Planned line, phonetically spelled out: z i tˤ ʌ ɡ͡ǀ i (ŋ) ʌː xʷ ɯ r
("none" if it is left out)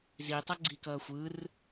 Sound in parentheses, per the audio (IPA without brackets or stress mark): k